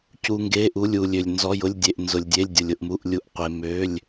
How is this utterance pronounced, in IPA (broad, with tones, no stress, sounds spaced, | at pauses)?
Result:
c u˩ ŋ ɡ e˩˧˩ ʔ u˩˧˩ lʲ u˩ lʲ ø˩ lʲ n z ɔ˩˧˩ j ʊ˩˧˩ lʲ dʲ e˩ ʔ n z ʊ˩ lʲ dʲ e˩˧˩ lʲ dʲ ʊ˩ lʲ ʊ˩ ʔ m u˩˧˩ ʔ lʲ u˩˧˩ ʔ qʷ e˩ m ø˩˧˩ lʲ